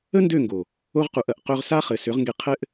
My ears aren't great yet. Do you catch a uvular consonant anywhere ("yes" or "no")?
yes